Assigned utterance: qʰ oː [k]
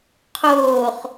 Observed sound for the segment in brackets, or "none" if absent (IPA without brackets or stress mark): χ